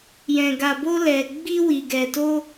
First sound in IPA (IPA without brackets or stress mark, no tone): j